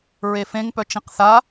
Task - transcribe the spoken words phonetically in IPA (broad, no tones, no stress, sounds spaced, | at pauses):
ɹ e f ẽ ŋ p œ t͡ʃ ĩ q θ a